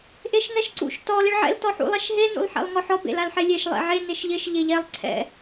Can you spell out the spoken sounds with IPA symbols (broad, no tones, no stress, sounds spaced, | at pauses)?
ʔ e ʃ ŋ ɛ ʃ ǀ ṵ ʃ t ɔ l ɪ ɭ ʕ ɛ̰ l t ɔ ħ ṵ lˠ ɛ ʃ ɦ e n ṵ lˠ ħ ɛ̰ lˠ ŋ ɔ ħ ɔ b ḛ l a l ħ e lʲ e ʃ lˠ ḛ ʕ e n e ʃ ʎ ɪ ʃ ʎ e ʎ ɛ lˠ ǀʰ ɛ̰